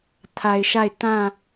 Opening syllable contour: low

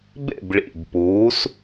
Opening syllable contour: falling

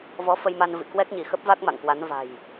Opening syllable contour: rising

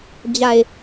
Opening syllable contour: low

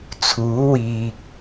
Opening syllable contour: rising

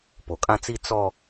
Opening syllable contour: low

